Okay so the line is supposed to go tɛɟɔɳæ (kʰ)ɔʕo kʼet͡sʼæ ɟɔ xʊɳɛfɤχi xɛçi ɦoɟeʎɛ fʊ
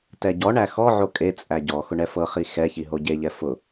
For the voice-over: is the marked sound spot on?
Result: no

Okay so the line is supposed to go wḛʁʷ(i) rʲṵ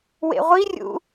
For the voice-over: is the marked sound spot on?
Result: yes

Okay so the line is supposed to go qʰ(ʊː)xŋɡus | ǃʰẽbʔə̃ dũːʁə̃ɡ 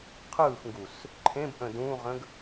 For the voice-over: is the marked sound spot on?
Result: no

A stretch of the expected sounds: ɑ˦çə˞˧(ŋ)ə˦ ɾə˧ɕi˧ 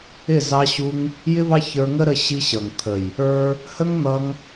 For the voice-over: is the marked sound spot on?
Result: yes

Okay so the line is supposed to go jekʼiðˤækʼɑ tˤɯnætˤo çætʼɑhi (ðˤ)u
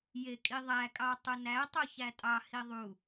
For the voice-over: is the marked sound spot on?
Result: yes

